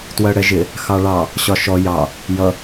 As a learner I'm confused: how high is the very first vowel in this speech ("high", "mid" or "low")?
mid